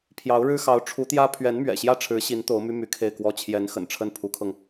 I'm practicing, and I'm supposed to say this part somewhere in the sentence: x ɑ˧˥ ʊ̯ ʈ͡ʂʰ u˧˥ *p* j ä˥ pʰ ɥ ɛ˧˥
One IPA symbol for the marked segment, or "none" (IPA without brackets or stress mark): t̪